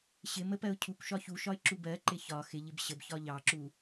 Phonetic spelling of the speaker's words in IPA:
ɕ ɪ m ə p ɜ ʊ̯ cʰ u kʷ ʃ ɒ ç u ʃ ɒ ɪ̯ ǁ u b ɜ ǃ ɪ ç ɒ x ɪ ʎ ɪ b ɕ ə b ç ɒ ʎ ɑ ǁ u

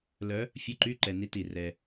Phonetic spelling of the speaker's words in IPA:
l œ˧˥ | fʲ ɯ˧˥ ǃ y˧˥˧ ǃ ɛ˨ n i˧˥ t i˨ r ɛ˨

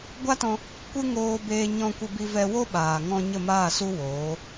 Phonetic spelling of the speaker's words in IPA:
ɡʷ a˦ t ɔ̃˧ | kʷ ɨ˦ ŋ oː˧ b eː˧ ɲ ɔ̃˧ kʷ ə˧ b i˧ v ɛ˧ w o˦ ɓ aː˨ ŋ ɔ̃˧ ɲ ə˦˨ m aː˦˨ s u˦ w oː˨˦

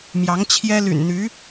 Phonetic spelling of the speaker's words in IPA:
m j ɑ˧˥ ŋ t͡ɕʰ j ɛ˥ l y̰˨˩ n n̪ y˧˥

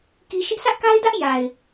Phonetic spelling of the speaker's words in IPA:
k i˦ ʃ ɪ˦ ʔ s ä˦ ʔ k a˦ ɪ̯ d ä˦ ʔ j a˨ ɪ̯

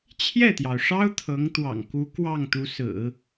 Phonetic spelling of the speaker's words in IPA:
t͡ɕʰ j ɛ˥˩ t̪ j ɑ˩ ʊ̯ ʂ ɑ˥ ʊ̯ t̪ʰ ɤ˧˥ ŋ t̪ w ɑ̰˨˩ ŋ k u˧˥ k w ɑ˥˩ ŋ t̪ u˧˥ s ɹ̩˨˩˦

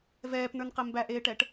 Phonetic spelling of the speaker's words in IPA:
v ɛː p n ə˞ n q ɘ m b æ ʔ eː ʈ ɛ ʈ

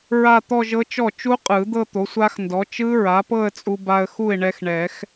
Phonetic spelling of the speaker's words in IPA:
ɹ a˥˧ t̪ ɔ˥˧ ʒ ɤ˦˥ t͡ʃ ɔ˥˩ t͡ʃ u˦˥ qʼ ɯ˨˩˦ d̪ ɤ˥˧ t̪ o˩˥ sʷ a˦˥ x n d ɔ˩˥ t͡ʃ ɯ˦˥ ɹ a˩˥ p ɤ˥˧ ə̯ t͡sʼ u˧ b a˧ ə̯ x u˥˩ ɪ̯ ɳ ɛ˧ x ɳ ɛ˨˩˦ x

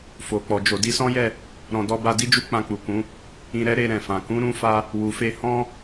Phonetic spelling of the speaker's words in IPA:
f o˨ k͡p ɔ˨ d͡ʒ o˨ d i˧ s ɔ̃˦ j ɛ˦˨ | ɾ ɔ̃˧ d ɔ˦ b a˧ d i˦ d͡ʒ u˧ k͡p ã˧ k͡p u˨ k ũ˨˦ | ĩ˧ ɾ ɛ˦ ɾ e˧ ɾ ɛ̃˨ f ã˨ k ũ˨˦ ɾ ũ˧ f a˧ | w u˨ f e˧ h ɔ̃˦

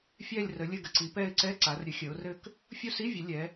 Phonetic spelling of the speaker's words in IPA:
fʲ ɛ˦˨ lʲ r ə˩˧ lʲ ɘ˦˨ ɡ ə˩˧ ǀ i˩˧ p ɛ˦˨ ɪ̯ ǀ ɛ˧˥˧ ǀ a˩˧ r ɾʲ ɘ˩˧ xʲ ə˩˧ ʊ̯ r ɘ˦˨ k | fʲ u˦˨ s i˧˥˧ vʲ ə˩˧ lʲ ɛ˩˧

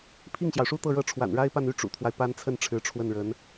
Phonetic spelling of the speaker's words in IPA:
pʰ i˥˩ ŋ ɕ j ɑ˩ ʊ̯ ʂ u˥ t̪ ɤ˥˧ ɻ ɤ˥˩ ʈ͡ʂʰ w a̰˨˩ n ɻ a˥ ɪ̯ p a˥˧ n y˥˩ ʈ͡ʂ ṵ˨˩ t̪ʰ w a˦ ɪ̯ p a˥ n t͡sʰ ə˥˩ n ʈ͡ʂʰ ɻ̩˧˥ ʈ͡ʂʰ w ə˥˩ n ɻ ə˧˥ n

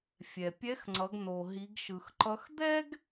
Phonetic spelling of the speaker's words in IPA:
fʲ ɛ˩ pʲ ɛ˧˥ x ŋ͡ǀ ʌ˩˧ ɡ n o˩ ɦ i˩˧ ɡ ʃ ɯ˩ x ǃ ʌ˧˥ x d̪ ɛ˥ ɡ

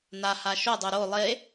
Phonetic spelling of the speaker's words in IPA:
n a h a ʃ o dˤ o ɾ o lˠ e

